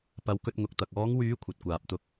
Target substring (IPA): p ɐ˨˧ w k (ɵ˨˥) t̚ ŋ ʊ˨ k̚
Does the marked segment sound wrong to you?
yes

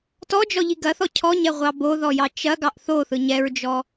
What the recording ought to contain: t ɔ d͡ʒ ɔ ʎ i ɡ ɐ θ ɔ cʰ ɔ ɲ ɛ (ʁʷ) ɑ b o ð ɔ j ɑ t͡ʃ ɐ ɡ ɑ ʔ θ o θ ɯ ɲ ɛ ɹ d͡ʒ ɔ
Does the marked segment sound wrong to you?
no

